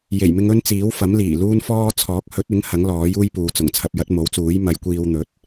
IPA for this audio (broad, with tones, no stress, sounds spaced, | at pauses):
j e˨˩ j m ɪ˧ ŋ ɵ˥ n t͡s iː˨˥ w f ɐ˨˥ m l iː˨˩ l uː˥ n f ɔː˥ t͡sʰ ɔː˨˥ k̚ h ɵ˨˥ t̚ ɪ˨˥ ŋ h ɐ˨˥ ŋ l ɔː˨˥ j uː˥ j p uː˨ t͡s ʊ˨˩ ŋ t͡sʰ ɐ˧ p̚ j ɐ˨˥ t̚ m o˨˥ w t͡s uː˨˥ j m ɐ˨˧ j kʷ iː˧ w n̪ ɵ˨˥ t̚